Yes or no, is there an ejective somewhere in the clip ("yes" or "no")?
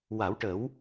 no